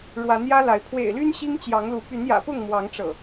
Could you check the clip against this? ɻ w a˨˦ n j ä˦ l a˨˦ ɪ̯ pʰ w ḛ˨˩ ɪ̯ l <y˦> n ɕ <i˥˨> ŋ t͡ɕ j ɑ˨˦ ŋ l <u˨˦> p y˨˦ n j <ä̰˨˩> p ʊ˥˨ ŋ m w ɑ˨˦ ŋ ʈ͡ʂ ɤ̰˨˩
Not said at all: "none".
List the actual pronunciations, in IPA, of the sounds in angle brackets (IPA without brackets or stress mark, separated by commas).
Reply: y˦, i˦, u˨˦, ä̰˨˩